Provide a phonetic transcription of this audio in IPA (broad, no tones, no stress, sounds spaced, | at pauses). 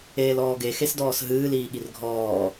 eː l ɔː ɡ e x e s d ɔː s ɦ ɨː l iː ɠ i r ɡʱ ɔː